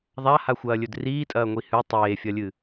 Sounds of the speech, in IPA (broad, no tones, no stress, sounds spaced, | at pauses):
ðˤ a h a xʷ ɐː lʲ ɵ d r iː tʼ ɐː ŋʷ i h ʉ tˤ eː fʲ ɐ lʲ ɨ